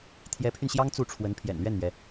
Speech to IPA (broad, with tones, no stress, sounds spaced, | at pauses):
t̪ʰ j ɛ˧˥ pʰ y˧ n ɕ j ɑ˥ ŋ t͡s u˥˩ ʈ͡ʂʰ w ə˧˥ n pʰ j ɛ̰˨˩ n l ɥ ɛ˥˩ n m ɥ ɛ˩